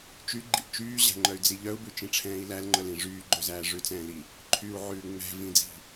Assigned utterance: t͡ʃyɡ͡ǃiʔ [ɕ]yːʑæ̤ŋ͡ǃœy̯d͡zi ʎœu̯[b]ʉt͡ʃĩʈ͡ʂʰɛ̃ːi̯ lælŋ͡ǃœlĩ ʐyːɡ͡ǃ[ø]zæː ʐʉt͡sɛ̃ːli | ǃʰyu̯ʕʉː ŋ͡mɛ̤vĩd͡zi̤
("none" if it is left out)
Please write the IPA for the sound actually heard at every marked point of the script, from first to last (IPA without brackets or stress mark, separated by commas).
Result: t͡ʃ, b, ø